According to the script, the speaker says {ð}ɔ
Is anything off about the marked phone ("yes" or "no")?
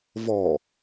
yes